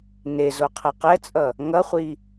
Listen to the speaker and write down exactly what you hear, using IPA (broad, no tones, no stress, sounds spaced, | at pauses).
n e z o qʰ ɛ q ɛ t͡sʼ ʌ | ŋ ʌ χʷ i